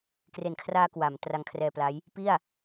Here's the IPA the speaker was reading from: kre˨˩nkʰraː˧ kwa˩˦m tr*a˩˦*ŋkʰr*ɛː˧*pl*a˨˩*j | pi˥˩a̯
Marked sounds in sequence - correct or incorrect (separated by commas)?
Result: incorrect, correct, incorrect